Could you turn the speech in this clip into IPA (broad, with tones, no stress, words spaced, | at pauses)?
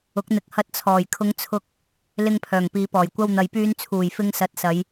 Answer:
ʊ˨˥k̚n̪ɪ˨˥k̚ hɐ˧t̚t͡sʰɔː˨˩jkʰʊ˧ŋt͡sʰʊ˧k̚ | lɪ˧ŋ pʰœː˨˩ŋpiː˨˧pɔː˨˩j kʷɐ˧wn̪ɐ˨jpyː˧nt͡sʰuː˨˩j fɪ˧ŋ sɐ˨˥t̚ sɐ˨˧j